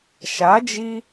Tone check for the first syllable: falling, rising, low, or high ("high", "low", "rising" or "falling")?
rising